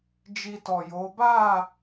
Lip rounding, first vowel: unrounded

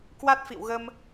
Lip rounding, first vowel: unrounded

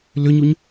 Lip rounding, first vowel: rounded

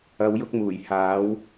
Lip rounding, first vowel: unrounded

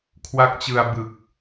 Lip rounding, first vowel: unrounded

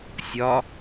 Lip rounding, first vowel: rounded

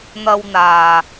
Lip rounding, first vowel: unrounded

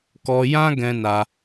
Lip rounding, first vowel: rounded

